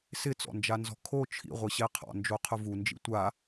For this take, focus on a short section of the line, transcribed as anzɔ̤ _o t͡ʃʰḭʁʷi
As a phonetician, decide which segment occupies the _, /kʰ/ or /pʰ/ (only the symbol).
kʰ